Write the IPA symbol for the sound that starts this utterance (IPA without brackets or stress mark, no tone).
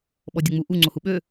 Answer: ɓ